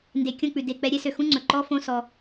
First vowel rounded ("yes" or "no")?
no